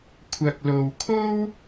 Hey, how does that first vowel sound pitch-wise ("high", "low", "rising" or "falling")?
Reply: low